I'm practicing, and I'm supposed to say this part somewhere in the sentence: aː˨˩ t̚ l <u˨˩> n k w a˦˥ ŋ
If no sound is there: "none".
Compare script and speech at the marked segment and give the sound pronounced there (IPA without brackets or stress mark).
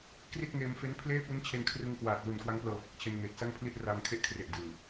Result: u˨˩